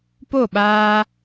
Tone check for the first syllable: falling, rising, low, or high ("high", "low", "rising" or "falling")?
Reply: falling